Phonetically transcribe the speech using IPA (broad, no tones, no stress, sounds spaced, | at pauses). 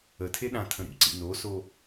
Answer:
ə tʰ e ɗ ã tʰ ə̃ ɾ ḭ ǀ ḭ n o s o